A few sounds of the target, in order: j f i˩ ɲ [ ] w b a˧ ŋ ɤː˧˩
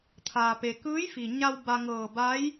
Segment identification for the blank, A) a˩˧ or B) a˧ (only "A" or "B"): B